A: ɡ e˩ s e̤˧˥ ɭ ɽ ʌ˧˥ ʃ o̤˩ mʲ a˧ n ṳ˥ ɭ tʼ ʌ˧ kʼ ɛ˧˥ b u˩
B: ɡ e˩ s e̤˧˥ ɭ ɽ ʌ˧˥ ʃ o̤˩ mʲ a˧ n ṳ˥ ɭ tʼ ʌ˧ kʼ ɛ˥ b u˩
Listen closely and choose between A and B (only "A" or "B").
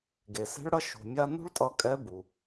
A